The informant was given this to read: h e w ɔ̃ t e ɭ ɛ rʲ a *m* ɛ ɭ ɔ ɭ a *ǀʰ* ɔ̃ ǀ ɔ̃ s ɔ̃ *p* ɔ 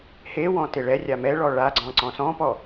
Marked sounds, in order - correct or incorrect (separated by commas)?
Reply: correct, incorrect, correct